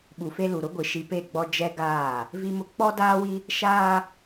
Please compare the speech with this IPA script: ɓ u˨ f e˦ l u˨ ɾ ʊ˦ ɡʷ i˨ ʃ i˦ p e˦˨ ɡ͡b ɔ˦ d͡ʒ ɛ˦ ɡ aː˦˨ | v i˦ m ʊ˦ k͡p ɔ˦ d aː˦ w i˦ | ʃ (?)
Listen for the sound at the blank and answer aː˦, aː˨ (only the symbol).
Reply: aː˦